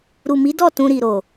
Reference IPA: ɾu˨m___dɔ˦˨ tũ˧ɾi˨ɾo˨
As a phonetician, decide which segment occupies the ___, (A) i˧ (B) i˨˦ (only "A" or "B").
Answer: B